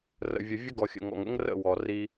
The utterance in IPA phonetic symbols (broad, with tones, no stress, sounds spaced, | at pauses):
r ə̰˨ vʲ ə˨ vʲ ə˦ ɡ ɔ˨ xʲ ə̰˨ ŋ ɔ̰˨ ŋ ə̰˦ ŋ r ə̰˦˨ w ɔ˨ r i˦